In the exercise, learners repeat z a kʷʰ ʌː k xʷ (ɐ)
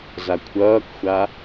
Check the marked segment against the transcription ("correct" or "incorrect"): incorrect